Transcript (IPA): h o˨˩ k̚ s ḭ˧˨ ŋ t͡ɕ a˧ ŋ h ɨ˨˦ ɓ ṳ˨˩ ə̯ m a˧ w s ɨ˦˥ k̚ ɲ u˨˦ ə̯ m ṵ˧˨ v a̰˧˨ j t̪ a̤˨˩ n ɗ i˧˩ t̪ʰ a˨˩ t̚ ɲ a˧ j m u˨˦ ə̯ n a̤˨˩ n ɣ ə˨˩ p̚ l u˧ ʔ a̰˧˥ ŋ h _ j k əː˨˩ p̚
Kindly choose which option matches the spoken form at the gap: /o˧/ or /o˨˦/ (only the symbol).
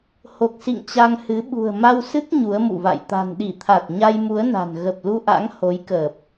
o˨˦